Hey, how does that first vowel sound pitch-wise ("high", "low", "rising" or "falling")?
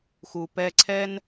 low